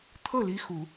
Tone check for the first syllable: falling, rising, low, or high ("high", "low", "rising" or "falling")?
falling